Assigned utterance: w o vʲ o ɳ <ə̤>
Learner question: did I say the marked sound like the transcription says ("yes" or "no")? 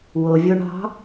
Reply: no